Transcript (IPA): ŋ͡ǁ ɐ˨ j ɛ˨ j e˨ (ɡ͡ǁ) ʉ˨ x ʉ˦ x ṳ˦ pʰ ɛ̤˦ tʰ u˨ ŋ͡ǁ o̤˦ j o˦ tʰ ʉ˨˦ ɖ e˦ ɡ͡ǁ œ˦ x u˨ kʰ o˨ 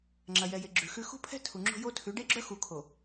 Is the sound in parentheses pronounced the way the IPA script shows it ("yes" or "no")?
yes